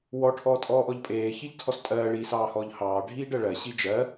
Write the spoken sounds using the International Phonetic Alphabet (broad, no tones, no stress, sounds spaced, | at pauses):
w ɔ ʈʰ ɔː tʼ ɔː ʔ ɔ ʎ pʼ eː ç i ʎ tʰ ɔ s tʼ ɜː ɭ iː s ɑː h ɔː ʎ h ɑː ɖʱ iː ɖ ɜ ɭ ɜ ɕ i d͡ʒ ɜ